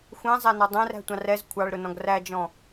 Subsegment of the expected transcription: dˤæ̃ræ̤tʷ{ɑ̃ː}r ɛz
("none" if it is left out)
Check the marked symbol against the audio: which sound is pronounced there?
ɑ̃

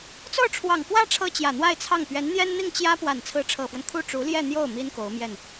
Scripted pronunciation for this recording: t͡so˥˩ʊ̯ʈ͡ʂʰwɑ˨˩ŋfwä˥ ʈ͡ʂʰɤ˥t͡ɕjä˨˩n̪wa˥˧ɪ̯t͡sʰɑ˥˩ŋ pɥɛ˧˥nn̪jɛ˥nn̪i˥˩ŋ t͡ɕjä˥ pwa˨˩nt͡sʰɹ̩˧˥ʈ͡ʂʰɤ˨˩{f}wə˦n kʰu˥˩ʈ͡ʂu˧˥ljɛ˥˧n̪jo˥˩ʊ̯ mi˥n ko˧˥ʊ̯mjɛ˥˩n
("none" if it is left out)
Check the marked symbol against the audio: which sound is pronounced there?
f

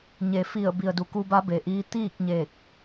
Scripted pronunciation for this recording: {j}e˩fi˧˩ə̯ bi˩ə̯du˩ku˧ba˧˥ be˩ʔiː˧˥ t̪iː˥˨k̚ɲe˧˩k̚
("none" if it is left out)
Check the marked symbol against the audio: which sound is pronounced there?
ɲ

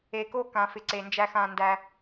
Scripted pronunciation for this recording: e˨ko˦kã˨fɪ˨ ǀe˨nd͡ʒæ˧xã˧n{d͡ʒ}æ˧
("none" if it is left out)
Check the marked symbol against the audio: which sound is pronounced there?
d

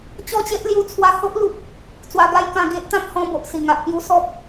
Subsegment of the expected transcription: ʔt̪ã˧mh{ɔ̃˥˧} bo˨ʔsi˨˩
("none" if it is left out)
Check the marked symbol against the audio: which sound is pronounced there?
ɔ̃˧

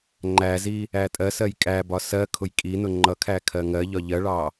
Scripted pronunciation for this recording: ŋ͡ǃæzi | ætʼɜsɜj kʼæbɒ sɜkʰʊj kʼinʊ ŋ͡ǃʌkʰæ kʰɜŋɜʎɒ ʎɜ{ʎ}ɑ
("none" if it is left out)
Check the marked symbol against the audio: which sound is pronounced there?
ɭ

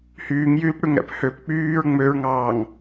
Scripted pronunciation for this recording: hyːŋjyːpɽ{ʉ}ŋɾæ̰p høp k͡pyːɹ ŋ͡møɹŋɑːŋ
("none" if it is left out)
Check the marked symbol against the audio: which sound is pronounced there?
ʉ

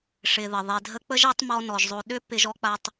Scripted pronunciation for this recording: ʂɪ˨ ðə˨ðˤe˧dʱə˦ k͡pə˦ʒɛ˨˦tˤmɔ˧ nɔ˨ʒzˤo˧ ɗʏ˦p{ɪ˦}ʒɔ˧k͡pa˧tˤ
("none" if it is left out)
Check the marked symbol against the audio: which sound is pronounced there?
ɪ˧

